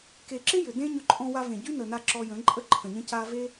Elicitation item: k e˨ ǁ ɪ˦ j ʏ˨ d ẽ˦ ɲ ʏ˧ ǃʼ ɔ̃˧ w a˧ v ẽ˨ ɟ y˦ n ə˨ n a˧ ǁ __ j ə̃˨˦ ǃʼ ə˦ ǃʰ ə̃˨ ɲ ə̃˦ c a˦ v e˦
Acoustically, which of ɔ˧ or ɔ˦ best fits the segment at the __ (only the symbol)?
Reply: ɔ˧